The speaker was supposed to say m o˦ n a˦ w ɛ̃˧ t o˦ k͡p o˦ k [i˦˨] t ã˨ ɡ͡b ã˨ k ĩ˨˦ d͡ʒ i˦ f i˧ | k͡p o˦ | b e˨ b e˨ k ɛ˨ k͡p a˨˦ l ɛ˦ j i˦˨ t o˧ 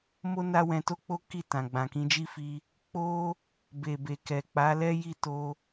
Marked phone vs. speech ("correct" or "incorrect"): correct